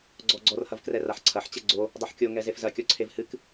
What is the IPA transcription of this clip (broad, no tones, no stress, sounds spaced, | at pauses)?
ɡ͡ǀ ɔ ɡ͡ǀ ɔ r h ɐ v k r ɛ r a ħ ǀʰ ɐ ħ t͡ɕ ɛ ɡ͡ǀ o | dˤ o ħ kʲ o ŋ ɛ z e f z ɐ kʲ ɔ ǀʰ e v h ɨ k